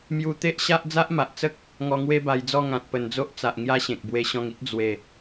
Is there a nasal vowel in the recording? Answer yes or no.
yes